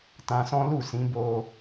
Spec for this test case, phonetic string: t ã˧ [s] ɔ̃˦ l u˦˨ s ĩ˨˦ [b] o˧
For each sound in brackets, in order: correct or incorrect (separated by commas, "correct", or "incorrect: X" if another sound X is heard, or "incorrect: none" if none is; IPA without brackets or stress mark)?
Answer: correct, correct